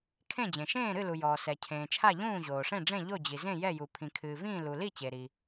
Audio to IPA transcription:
kʰ ẽ˥˩ d͡ʑ ẽ˩ ʃ ẽː˥˩ ɾ ɨ˥˩ l u˩ j ɔː˩ s ɛ˩ cʰ ẽː˩ t͡ʃʰ a˥˩ ʎ ũː˥˩ ʑ oː˩ ʂ ẽ˥˩ ɖ͡ʐ ẽ˥˩ ʎ o˥˩ d͡ʑ i˩ z ẽ˥˩ j ɛ˥˩ j u˩ pʰ ĩ˩ kʰ ɨː˩ v ĩː˥˩ l u˩ l i˥˩ t͡ɕ e˩ ɾ i˩

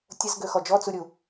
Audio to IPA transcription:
tʲ ə z ɡ ø x ɔ d͡ʒ ɔ t͡s u ɾʲ u

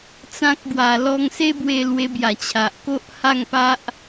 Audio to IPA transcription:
t͡s ã˦ k̚ ɡ w a˨˩ l ɔ˧ ŋ s e˦ b w e˧ l w e˧ b j a˨˩ t͡ɕʰ a˨ ʔ k o˦ ʔ h a˥˧ ŋ p a˦ ʔ

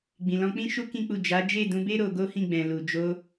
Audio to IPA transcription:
ɡ͡b ĩ˨ l ɔ̃˧ k͡p ĩ˦ ʃ u˦ k ĩ˦ k͡p u˦˨ d͡ʒ a˨˦ d͡ʒ e˦˨ d ũ˧ b e˦ ɾ o˧ ɡ o˦ h ĩ˦˨ ɡ͡b ɛ̃˨ l u˨ d͡ʒ o˧

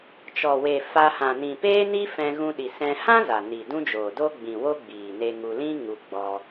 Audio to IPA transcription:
t͡ʃ ɔ˨ w e˨ f a˧ h ã˨ n ĩ˨ p eː˦ n i˦ f ɛ̃˧ ɣ ũ˧ ɗ i˨ s ɛ̃˧ h ã˦ z a˨ n i˨ d ũ˦ d͡ʒ oː˨ d o˦ ɡ͡b ĩ˨ w o˦ ɡ͡b iː˨ n e˧ ŋ u˧ l ĩ˦ ŋ u˧ ɡ͡b ɔ˧

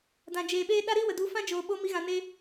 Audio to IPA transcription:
d ã˨ d͡ʒ eː˨ ɓ eː˦ ɗ a˦ ɾ iː˦ w ə˨ d u˨˦ f ã˦ d͡ʒ oː˨ ɓ o˧ m i˨˦ ɣ ã˨ n e˧

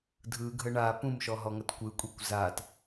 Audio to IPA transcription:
dʱ ɯ ɡʱ ə ɳ a p ũ m ʃ ɔ ɦ ɔ ŋ ɐ t kʷ ɯ kʷʼ i kʷ z a t

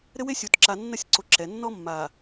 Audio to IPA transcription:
ɾ ɘ˦ w e˦ sʲ o˨ t ǁ a˨ nː ɐ˦ sʲ ǀ o˨ ǁ ɛ˨˦ nː ɔ˦ mː a˨

